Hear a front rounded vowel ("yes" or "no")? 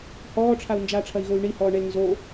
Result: yes